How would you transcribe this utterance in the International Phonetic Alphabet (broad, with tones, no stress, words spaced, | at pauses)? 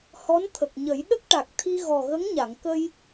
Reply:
hɔ˧˥nt̪ʰə˨˩k̚ɲə˨˩˦j ɗə˦˥k̚ʈa˨˩k̚t̪ʰi˧ ɣɔ˨˩ɣə˧˥ŋɲa˨˩˨ŋ kə˧j